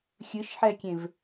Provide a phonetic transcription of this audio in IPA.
xʲ ɨ ʃ ħ ɛ kʲ ẽ v

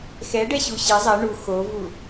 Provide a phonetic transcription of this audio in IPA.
x ɛ ɖ ɛ ɕ u ɕ ɪ zˤ ɛ ɳ u x o v u

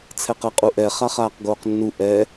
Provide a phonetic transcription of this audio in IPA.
t͡sʰ ɛ q ɜ qʼ u ʔ ɛ χ a χ aː q ɡ oː q nː u ʔ ɛ

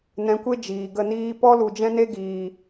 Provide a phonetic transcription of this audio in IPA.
n ɛ̃˧ kʷ e˦ d͡ʒ iː˨ ɡ ə˦˨ n iː˦ p ɔ˦ l u˨ d͡ʒ ɛ̃˦ n e˦ ɡ iː˨

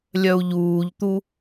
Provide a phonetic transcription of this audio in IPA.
lʲ œ u̯ ʎ uː ʎ t̪ u

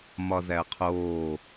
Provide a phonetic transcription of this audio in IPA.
m ɒ z æ ə̯ qʰ oː

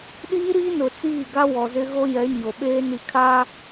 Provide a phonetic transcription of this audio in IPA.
ɗ iː˦ ɾ iː˦ n ʊ˨ t͡s iː˦˨ ɡ a˦ w ɔ˨ z ɪ˦ ɣ o˦ j ɛ˨˦ ɲ o˨ ɓ eː˦ n i˨ kʰ aː˦

